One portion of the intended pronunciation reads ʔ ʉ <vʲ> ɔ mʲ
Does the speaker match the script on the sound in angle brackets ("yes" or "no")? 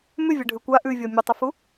yes